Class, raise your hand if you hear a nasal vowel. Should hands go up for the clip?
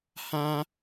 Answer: yes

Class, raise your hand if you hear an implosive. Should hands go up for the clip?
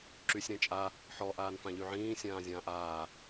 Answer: no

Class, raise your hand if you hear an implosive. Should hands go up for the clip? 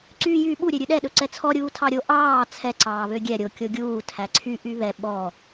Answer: yes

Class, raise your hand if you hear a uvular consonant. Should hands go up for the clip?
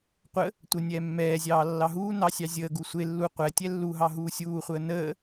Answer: yes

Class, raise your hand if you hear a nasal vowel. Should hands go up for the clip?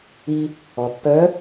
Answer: no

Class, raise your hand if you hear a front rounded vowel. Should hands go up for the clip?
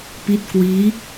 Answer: no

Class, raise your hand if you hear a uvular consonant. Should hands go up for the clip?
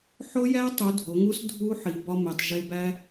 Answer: no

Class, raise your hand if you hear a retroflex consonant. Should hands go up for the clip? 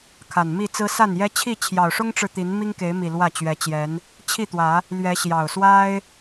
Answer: yes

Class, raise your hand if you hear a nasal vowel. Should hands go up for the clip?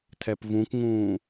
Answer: yes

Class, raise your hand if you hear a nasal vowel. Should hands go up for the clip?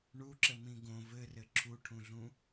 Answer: yes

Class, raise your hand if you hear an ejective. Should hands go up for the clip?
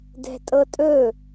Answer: yes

